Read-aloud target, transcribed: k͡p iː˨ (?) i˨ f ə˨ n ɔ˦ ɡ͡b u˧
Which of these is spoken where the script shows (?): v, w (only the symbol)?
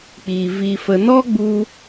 v